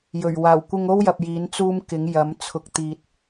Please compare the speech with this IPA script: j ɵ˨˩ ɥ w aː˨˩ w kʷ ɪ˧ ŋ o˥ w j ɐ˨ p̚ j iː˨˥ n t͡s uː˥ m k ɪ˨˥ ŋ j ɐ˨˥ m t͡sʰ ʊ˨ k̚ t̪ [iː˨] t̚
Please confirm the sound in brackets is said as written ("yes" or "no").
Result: yes